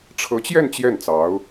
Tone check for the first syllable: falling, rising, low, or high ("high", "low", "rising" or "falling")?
rising